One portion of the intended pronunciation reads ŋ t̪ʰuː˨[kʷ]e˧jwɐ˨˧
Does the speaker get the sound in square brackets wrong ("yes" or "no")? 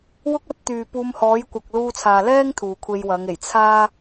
yes